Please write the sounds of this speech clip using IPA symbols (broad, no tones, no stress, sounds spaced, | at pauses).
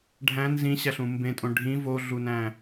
ɖʱ æ̃ n z ĩ ɕ æ ɬ ũ m b ẽ tʼ õ ɖʱ ĩ v o ɮ u n æ̃